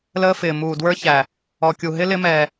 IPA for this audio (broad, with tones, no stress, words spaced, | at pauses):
ləː˦fɪː˨ muː˨dwə˞˦çæ˨ | ɔ˨kʲu˨ɦɪ˦ lɪ˦mɛː˨